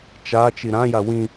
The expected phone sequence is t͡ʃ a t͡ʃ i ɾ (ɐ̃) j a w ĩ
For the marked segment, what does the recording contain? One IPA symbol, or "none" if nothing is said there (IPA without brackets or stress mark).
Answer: ã